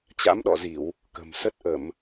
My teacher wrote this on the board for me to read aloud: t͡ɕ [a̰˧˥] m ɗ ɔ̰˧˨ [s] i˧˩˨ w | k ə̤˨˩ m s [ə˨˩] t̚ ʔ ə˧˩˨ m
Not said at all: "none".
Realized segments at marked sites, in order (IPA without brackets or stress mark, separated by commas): a̰˧˥, z, ə˦˥